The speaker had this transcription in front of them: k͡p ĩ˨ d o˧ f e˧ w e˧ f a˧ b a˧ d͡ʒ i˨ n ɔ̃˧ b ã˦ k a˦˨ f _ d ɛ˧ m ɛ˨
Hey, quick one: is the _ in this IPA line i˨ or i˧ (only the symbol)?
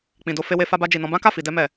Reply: i˨